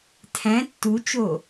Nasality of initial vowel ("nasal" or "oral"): nasal